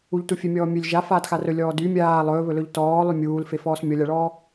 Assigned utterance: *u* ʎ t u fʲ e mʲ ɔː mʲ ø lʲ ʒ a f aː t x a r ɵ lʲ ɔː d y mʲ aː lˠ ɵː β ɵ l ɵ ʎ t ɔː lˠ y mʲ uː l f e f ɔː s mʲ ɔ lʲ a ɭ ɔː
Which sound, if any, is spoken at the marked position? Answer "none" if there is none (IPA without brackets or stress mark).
u